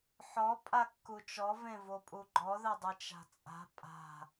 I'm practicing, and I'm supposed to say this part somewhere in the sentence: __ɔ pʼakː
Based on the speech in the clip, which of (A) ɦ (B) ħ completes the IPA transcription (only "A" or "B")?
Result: B